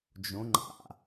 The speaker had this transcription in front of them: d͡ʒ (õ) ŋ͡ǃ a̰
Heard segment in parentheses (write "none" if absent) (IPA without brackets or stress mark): õ